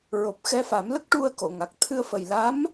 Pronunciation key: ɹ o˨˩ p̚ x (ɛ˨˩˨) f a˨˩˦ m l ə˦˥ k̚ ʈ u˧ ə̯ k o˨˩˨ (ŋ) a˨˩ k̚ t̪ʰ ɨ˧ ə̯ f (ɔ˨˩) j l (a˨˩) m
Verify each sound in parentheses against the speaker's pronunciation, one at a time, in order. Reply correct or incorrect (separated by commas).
incorrect, correct, incorrect, incorrect